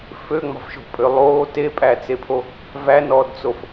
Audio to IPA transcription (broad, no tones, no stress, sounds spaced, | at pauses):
f ø ŋ͡m ɑ̤ f ʃ o̤ pʼ ø lˠ oː t e pʼ æ t͡s e pʰ o | v æ n ɔː d t͡s o f